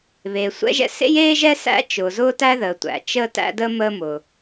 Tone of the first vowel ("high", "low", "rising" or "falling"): low